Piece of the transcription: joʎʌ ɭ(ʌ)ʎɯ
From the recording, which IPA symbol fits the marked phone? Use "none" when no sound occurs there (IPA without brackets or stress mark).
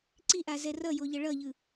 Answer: ʌ